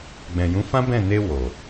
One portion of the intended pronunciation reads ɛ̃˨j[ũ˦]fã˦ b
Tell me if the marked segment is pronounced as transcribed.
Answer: no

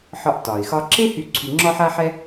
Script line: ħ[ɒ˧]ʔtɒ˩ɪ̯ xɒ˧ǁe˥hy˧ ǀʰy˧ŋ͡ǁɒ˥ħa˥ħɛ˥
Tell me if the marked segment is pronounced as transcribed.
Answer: yes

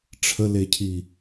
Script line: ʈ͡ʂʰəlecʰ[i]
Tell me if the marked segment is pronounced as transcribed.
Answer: yes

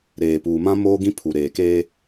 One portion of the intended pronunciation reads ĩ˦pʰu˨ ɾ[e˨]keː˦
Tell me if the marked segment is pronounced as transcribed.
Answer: no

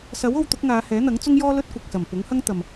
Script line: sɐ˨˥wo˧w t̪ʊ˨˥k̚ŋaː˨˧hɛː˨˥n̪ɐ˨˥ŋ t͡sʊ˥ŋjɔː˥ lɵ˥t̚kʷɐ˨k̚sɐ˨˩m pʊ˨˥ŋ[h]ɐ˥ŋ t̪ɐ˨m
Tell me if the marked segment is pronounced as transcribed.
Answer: yes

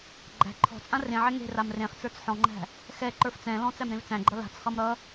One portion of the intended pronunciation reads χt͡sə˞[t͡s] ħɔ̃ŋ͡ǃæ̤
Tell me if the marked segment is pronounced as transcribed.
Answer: yes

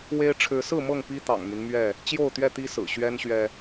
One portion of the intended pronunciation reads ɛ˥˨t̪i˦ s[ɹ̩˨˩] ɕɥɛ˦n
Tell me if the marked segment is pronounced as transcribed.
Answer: yes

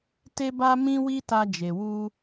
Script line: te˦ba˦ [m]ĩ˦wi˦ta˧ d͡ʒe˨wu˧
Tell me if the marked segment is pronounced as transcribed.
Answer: yes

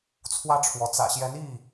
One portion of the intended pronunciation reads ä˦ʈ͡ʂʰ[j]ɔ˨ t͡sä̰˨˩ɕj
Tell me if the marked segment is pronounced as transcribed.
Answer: no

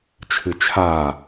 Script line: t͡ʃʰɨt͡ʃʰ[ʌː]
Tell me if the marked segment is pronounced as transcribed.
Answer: no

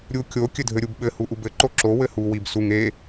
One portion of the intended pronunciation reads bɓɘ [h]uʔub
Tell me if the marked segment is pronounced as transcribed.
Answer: yes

